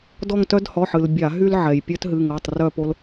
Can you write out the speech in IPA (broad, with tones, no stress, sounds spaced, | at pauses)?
d ɔ˦˨ ŋ t œ˦ d h ɔ˩˧˩ ħ ɨ˩ l bʲ a˧˩˧ ɦ y˦ l ʕ ɛ˩ j pʲ œ˦ t ɦ ɨ˩˧˩ ŋ ɤ˩˧˩ tˤ r œ˦˨ p o˦ l